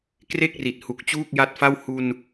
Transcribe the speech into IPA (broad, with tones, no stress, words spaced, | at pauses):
kre˥˩k̚ri˨˩t̚ hu˨˩k̚t͡ɕuː˥˩k̚ja˦˥t̚fa˥˩w hu˧n